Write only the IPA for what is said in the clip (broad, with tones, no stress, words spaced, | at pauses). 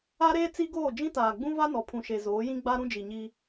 a˦ɾeː˦ t͡si˦ɡoː˦˨ d͡ʒĩ˦taː˨ɡ͡bũ˦va˦ nɔ˨pʰũ˨ʃe˨ zoː˨˦jĩ˦ɡ͡ba˦ ɾũ˦d͡ʒi˨ɲi˦